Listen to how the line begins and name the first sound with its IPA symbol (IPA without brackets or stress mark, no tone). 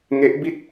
ŋ